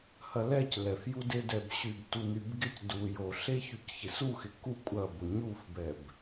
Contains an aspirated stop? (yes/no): no